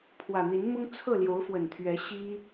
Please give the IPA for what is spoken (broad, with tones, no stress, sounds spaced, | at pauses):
pʰ w ä˨˩ n̪ i˨˦ n m ʊ˦ ŋ t͡sʰ ɤ˥˨ l j o˨˦ ʊ̯ f w ə˨˩ n t̪ʰ ɥ ɛ˨˦ ɕ i˦